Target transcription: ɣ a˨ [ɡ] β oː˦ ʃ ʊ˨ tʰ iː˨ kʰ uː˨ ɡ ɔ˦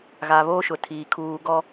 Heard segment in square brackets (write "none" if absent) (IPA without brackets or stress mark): none